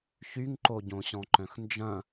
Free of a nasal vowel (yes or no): no